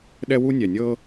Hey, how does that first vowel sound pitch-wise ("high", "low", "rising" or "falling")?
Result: high